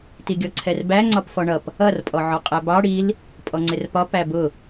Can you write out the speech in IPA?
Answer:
t i ɡʲ ɔ ǀʰ ɛ r b æ ŋ͡ǀ ɒ p f ɔ ɳ ʌ p | ʌ r pʼ ɔ ʕ ɔ qʼ æ b ɑ ɽ i l | pʼ ɔ ŋ͡ǀ ɪ r p ɒ p æ b ʊ

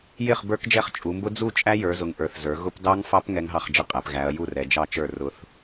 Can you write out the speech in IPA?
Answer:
j ɪ˥˩ χ b ə˞˦˥ k d͡ʒ ɛ˥˩ χ t͡ʃʼ u˩˧ m b ʊ˦˥ d͡z u˥˩ t͡ʃʼ æ˦˥ j ə˞˩˧ z ʊ˩˧ ŋ ʔ ə˞˩˧ θ z ə˞˩˧ ɣ ʊ˦˥ p d ɑ˦˥ ŋ f ɑ˦˥ p ŋ ɛ˦˥ ŋ ɦ ɑ˥˩ χ d͡ʒ ə˥˩ qʼ æ˩˧ p ɣ æ˩˧ ɐ̯ j u˥˩ r ɛ˩˧ d͡ʒ ɑ˥˩ t͡ʃ ə˞˥˩ r ʊ˦˥ θ

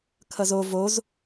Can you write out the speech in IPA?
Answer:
kʰ ʌ z o v o z

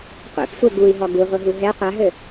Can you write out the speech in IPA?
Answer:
qʷ ḛ p sʷ ɛ ɡ u i̯ ɦ ɔ ɡ u ʁʷ ɘ ɦ u ɦ ɛ qʷ a ɦ ɘ

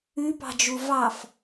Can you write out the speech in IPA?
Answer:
ʉ p ɑ̤ d͡ʒ u v ɑ f

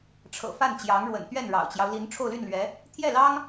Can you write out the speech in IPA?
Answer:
ʈ͡ʂʰ ɤ̰˨˩ f a˥˩ n t͡ɕ j ɑ˧˥ ŋ ɻ w ə̰˨˩ n t̪ ɥ ɛ˥˩ n ɻ ɑ̰˨˩ ʊ̯ t͡ɕ j ɑ˦ ʊ̯ l i˧˥ n ʈ͡ʂʰ o˥˧ ʊ̯ l y˥˩ n l ɥ ɛ˧˥ | t̪ʰ j ɛ˥˩ l ɑ˥ ŋ

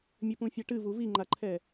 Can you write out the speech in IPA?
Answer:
mʲ ɘ p ũ fʲ a ʈ ɨ v u v i ŋ͡ǃ a ǃʰ ɛ

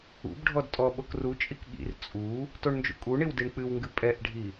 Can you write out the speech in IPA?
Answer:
ṵ b ɖʱ ɔ d tʼ ɔ ɓ o k r u t͡ʃʼ i k ɠ ḭ r t͡sʼ u | t o ɳ n d͡ʒ ṵ kʼ u ɳ i w d i ɳ k͡p ɨ w ŋ ɡ ɨ pʼ ɛ ʔ ɖʱ i

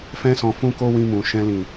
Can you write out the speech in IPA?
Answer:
f ɛ̃˦ s ɔ̃˧ f ũ˦ k o˦ w ĩ˧ m ũ˨ ʃ ɛ̃˧ l ĩ˨

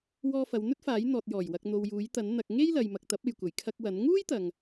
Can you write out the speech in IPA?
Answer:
w ɔː˧ f ɐ˨˧ w n̪ ɵ˥ t̚ f aː˨˥ j n̪ ɔː˨ t̚ j ɔː˨˩ j w ɐ˨ k̚ n̪ o˨ w j uː˨˥ j t̪ ɐ˨˥ n n̪ ɐ˨ k̚ ŋ e˥ j l ɐ˨ j m ɐ˨ k̚ t̪ ɐ˨˥ p̚ e˨ j kʷ ɐ˨˩ j kʰ ɐ˧ k̚ w ɐ˨˥ n ŋ uː˥ j t̪ ɐ˨ ŋ

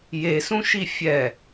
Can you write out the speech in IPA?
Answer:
j e s ũ ʃ i fʲ ɛ

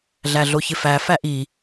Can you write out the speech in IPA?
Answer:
ɮ æ ɮ o ç ɪ f æ f æ ʔ i

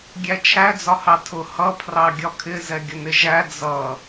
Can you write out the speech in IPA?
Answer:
ɡʲ æ t͡ʃʰ æ d͡z ɒ h ɑ tʰ ʊ h ʌ pʰ r ɑ ɡʲ ɒ kʰ ɪ z ɛ ɡʲ ʊ n ɪ ʒ æ d͡z ʌ

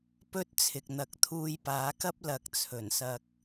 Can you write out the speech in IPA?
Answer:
p ɵ˧ t̚ t͡sʰ ɪ˨ k̚ n̪ ɐ˨˥ k̚ t̪ʰ uː˧ j p aː˨˥ k ɐ˥ p̚ l ɐ˨˥ k̚ t͡sʰ ɵ˨˩ n s ɐ˧ k̚

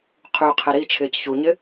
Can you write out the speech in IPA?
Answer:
qʰ y qʰ e ɾ i t͡ʃʰ ɪː c ç u ɲ ɪ

